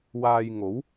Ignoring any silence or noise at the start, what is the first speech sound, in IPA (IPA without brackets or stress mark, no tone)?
w